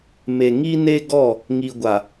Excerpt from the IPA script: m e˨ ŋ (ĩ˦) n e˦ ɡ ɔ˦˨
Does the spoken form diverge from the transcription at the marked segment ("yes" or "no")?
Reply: yes